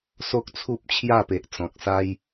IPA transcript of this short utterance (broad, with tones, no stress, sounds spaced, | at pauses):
s o˦ k̚ t͡sʰ u˦ p̚ t͡ɕʰ j a˥˧ p e˨ ʔ t͡s ɔ̃˨ k̚ s a˦ j